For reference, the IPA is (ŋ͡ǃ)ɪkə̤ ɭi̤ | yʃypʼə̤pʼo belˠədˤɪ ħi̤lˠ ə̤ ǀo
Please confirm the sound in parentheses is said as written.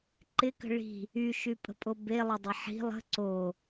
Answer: no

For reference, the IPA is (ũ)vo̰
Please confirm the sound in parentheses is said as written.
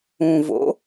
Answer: yes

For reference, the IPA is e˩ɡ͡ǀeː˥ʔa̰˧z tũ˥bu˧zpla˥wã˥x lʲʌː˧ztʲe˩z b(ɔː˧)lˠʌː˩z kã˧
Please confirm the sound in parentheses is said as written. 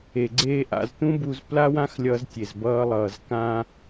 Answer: no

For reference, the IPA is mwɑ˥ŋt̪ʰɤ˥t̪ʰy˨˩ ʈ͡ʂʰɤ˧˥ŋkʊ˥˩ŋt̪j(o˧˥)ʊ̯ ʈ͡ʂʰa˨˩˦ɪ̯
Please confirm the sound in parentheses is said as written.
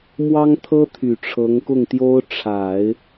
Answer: no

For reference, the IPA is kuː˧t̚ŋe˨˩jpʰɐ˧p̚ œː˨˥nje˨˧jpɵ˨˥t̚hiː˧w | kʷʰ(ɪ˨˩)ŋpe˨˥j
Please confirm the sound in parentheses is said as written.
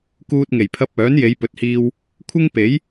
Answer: no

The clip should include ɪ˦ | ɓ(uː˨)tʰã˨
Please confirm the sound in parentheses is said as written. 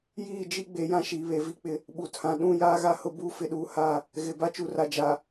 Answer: no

